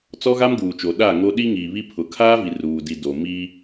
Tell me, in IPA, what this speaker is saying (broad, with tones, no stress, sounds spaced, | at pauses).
t͡s ɔ˦ ɣ a˦ m ɡ uː˨ t͡ʃ o˨ ɗ a˦˨ ŋ o˦ ɗ i˦ ŋ iː˨ β i˦ pʰ ʊ˨ kʰ aː˦ v i˨ r uː˨ d i˨ d o˨ m i˦